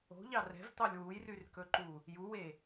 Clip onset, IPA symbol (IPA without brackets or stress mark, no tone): o̤